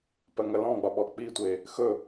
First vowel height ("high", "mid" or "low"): mid